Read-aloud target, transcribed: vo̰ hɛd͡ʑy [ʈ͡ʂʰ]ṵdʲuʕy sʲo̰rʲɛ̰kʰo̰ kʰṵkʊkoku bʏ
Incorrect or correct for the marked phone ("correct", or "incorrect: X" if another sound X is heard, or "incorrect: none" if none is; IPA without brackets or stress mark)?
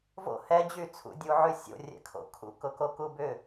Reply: incorrect: t͡sʰ